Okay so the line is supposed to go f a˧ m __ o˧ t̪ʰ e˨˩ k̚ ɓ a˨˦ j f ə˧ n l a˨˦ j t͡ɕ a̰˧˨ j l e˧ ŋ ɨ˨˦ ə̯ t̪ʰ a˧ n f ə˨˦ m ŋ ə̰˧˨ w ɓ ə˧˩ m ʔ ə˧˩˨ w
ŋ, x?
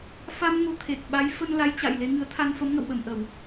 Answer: ŋ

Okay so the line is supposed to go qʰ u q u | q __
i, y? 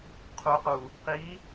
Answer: i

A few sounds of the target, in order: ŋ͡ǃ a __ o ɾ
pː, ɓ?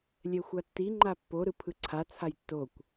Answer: pː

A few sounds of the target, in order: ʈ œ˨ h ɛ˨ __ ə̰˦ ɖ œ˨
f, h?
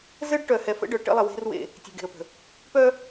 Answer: f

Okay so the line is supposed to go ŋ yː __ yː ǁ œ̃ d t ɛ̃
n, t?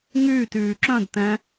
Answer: t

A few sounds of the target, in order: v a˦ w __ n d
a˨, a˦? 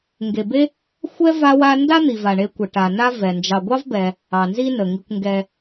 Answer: a˦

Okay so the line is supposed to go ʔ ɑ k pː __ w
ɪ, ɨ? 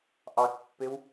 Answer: ɪ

